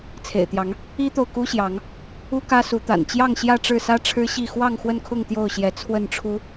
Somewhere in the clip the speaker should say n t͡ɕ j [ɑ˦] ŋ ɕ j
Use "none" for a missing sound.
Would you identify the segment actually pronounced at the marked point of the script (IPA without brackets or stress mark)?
ɑ˥˨